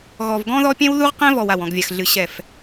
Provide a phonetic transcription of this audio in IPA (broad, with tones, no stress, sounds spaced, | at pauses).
ɣ ɔ˨ v ɡ ɔ̃˦ ð ɔ˦ pʲ ɛ̃˦ w ð u˦ ʁ q ɛ̃˦ v ɔ˨ w a˨ w ɔ̃˨ ɡ vʲ a˨ x ɮ ɨ˨ ɕ ɛ˨ f